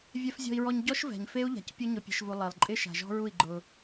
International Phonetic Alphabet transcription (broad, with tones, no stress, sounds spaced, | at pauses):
vʲ ɛ˨ f zʲ ɔ̤˨ i̯ ɹ ɔ˨ ɲ ɟ ɔ˦ ʃ v ɛ̤˨ ɲ f e˦ u̯ ʎ a̤˨ c pʲ ʊ˦ ɲ ʊ˨ pʲ ɛ̤˨ ʃ v u˨ lˠ e˨ lˠ ǃʼ ɪ˦ ʃ a̤˨ ʒ ɔ̤˦ ɹ u˦˨ i̯ ɡ͡ǃ ʊ˦